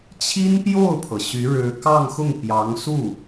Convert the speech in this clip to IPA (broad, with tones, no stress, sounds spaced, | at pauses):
t͡ɕʰ i˥ n p j o˥˩ ʊ̯ pʰ ɤ˩ ɕ y˧˥ ɻ ɻ̩˧˥ k ɑ˥˧ ŋ x ʊ˥˩ ŋ p j ɑ˧˥ ŋ s u˥˩